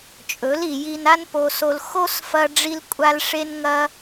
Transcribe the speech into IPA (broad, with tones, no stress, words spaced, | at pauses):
t͡ʃʼɵ˨˦li˨ji˧na˦n po˧so˧l xo˦sfɐ˧ɖ͡ʐi˧lkʷʼa˧l ʂe˦nŋɐ˦